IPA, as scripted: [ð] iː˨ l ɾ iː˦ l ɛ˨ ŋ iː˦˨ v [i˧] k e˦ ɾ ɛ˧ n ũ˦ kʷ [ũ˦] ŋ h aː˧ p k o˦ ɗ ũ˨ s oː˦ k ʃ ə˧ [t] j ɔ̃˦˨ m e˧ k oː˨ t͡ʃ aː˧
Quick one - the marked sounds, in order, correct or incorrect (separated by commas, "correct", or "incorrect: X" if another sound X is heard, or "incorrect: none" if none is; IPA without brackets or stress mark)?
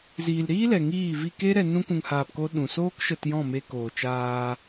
incorrect: z, correct, incorrect: ũ˧, correct